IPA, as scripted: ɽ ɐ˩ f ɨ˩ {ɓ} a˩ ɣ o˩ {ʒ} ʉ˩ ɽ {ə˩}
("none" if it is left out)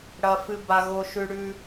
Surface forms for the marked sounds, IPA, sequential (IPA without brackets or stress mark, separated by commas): b, ʃ, ʉ˩